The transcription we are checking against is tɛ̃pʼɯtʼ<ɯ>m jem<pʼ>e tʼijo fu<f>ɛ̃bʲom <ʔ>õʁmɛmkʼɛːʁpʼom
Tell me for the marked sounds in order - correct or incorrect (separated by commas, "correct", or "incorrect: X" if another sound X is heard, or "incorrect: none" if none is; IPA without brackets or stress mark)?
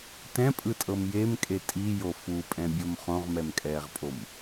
incorrect: ɤ, incorrect: kʼ, incorrect: pʼ, incorrect: χ